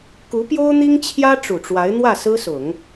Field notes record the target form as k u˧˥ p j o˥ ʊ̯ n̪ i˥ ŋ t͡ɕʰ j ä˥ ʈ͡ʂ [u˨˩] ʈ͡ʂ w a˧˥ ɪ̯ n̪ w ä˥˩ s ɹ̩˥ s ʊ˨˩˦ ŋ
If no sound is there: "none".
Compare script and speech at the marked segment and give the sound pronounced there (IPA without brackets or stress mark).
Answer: u˨˩